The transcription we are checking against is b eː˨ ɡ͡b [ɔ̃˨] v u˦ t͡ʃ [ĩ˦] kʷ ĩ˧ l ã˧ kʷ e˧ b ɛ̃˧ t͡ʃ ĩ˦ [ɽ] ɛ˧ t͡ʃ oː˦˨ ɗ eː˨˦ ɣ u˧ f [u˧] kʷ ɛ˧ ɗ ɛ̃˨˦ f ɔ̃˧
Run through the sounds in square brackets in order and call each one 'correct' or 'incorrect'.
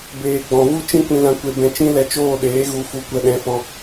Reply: correct, correct, incorrect: l, correct

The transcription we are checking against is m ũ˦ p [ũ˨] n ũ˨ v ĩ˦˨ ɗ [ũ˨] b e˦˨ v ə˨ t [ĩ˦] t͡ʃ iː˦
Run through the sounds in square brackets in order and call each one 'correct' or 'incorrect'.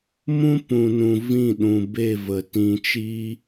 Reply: correct, correct, incorrect: ĩ˧

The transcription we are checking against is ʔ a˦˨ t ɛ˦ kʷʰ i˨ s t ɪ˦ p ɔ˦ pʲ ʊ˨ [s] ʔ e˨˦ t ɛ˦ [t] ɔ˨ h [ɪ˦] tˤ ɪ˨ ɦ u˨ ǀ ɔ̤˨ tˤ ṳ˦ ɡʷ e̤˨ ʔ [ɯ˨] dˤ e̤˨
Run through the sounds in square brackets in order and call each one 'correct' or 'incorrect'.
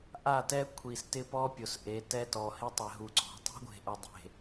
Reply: correct, correct, correct, incorrect: ʊ˨

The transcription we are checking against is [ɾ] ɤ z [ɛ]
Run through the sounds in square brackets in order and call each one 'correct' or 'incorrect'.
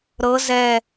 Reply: correct, correct

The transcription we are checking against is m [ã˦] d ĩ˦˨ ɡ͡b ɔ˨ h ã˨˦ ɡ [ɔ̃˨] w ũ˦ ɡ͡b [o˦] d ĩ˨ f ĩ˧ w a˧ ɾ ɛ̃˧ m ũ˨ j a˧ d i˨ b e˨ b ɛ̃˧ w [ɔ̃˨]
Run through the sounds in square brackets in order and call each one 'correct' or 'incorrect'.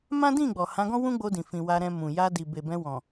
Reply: correct, incorrect: ɔ̃˦, incorrect: o˧, correct

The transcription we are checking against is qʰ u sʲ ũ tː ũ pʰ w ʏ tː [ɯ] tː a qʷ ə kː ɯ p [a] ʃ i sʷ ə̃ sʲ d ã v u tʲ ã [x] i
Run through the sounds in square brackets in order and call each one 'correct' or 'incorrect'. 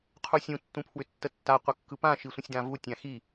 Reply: incorrect: ə, incorrect: ã, correct

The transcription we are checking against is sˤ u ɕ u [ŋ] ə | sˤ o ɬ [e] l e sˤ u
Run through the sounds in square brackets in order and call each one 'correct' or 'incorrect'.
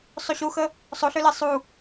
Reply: incorrect: x, incorrect: ø

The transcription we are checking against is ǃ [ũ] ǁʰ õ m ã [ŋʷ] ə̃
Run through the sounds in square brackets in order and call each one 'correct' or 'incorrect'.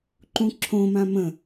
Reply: correct, incorrect: m

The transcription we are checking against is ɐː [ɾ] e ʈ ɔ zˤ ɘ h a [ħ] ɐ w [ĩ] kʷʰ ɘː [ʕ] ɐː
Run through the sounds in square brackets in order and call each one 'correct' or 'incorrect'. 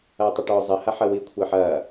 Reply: incorrect: tˤ, correct, incorrect: i, incorrect: ħ

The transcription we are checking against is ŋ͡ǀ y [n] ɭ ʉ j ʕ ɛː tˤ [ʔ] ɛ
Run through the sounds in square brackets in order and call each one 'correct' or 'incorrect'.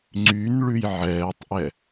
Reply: correct, correct

